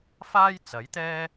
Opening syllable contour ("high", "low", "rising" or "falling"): high